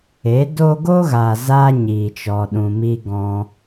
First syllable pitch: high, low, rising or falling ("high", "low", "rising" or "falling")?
rising